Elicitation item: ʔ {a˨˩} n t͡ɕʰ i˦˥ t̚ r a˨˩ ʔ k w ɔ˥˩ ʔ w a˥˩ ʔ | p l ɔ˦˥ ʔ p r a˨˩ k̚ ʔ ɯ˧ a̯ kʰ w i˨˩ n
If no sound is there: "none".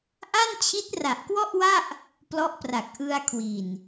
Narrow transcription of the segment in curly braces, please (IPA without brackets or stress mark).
a˥˩